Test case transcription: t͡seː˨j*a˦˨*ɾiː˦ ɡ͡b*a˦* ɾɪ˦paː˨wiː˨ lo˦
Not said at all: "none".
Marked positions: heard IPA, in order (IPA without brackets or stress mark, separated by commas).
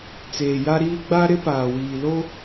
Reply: a˦, a˦